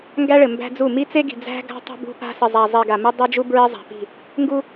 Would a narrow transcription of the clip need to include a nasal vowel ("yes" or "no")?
no